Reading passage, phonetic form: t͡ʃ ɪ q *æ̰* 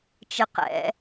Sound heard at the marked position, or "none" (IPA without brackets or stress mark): ɛ̰